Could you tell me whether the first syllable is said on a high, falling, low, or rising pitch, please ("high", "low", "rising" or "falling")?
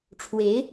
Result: rising